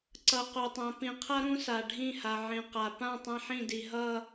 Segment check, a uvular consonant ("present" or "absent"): present